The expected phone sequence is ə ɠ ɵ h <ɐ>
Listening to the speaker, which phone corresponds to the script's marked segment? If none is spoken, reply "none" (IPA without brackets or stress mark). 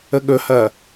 ɐ